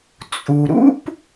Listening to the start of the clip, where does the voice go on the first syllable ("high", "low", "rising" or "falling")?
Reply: low